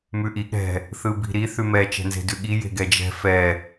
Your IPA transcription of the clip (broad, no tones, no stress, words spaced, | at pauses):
mʉʔi ɠɛ̤ | θɯbi̤ɾi θʉmɛ t͡ʃɛ̤nze̤dʉɠi je̤ɡɛd͡ʒɛ̤ fɛ